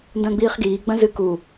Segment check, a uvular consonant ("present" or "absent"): present